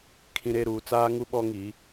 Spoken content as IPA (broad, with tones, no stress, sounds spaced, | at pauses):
kʰ ĩ˨ ɾ e˦˨ ɾ uː˨ t͡s aː˦ ŋ u˦ ɓ ɔ˦ ŋ i˨˦